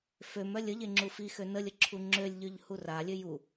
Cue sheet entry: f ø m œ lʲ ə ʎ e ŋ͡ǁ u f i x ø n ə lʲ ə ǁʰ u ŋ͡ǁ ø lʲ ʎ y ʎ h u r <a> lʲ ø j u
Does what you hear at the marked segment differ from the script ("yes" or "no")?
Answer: no